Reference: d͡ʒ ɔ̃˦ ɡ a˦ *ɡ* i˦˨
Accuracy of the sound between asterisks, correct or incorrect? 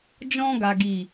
correct